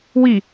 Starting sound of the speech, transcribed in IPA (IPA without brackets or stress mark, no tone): w